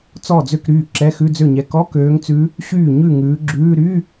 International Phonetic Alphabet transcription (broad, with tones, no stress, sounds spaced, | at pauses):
t͡s ɔ˥˩ d͡z ø˥˩ k ɾ yː˥˩ ǁ ɛ˧˥˧ x ʉ˧˥˧ d͡z ø˥˩ ɲ ɛ˨˦ k ɔ˧˥˧ k øː˨˦ ŋ t͡s ʉ˨˦ | ɕ yː˥˩ ɲ ʉ˥˩ ŋ ʉː˨˦ ɡ͡ǁ ʉː˧˥˧ ɾ y˧˥˧